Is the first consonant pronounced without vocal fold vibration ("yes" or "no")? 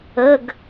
no